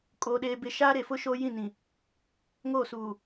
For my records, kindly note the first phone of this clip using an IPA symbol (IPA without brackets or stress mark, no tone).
kʼ